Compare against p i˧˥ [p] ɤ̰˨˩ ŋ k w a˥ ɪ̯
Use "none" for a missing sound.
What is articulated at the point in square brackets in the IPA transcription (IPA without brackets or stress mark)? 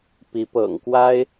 p